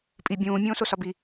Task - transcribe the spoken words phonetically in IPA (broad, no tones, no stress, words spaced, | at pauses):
pʼi bʲũː mʲõːsosɒbi